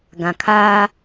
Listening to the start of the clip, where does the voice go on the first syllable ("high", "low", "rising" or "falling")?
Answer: low